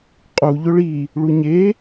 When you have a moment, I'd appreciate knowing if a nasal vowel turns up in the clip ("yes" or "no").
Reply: no